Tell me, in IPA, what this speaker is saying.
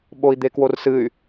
ɓoi̯d̪ekworsɨy̯

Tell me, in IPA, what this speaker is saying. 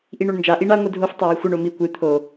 ʔiɳoɳnd͡ʒa ʔiɳa ŋʷɨdʱof tˤawixʷɘɳ omi kʷɨ t̪ʰo

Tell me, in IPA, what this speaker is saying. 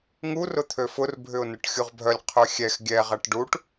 ŋu rʊt̪ʰøfʊr bʱʏʊ̯nʊʈxʲuʁbʱœlʲ qʰœxʲɛx ɡʲɛ ʁɐʈɖuʈ

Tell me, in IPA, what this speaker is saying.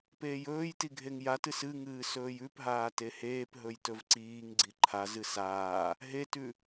peːjɵːjti ɡʱeŋjatɨs ɨŋɨː sɵːjʉpɦaː teheːpɦɵj tɵvǀiːŋɡ͡ǀi ǃʰazɨ saː | ɦetʉ

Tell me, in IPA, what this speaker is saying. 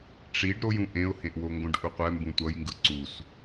ʈ͡ʂiɖ ɾojũ ʔẽʊ̯hẽʔwoŋɡõɖ ʔuqʷɛ mbũtʷʌjŋɡɯ ǀus

